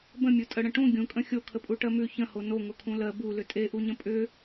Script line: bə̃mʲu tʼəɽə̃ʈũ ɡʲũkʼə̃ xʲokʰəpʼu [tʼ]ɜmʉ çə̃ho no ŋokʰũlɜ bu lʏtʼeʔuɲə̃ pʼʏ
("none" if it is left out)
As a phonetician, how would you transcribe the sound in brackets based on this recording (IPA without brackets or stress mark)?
ʈ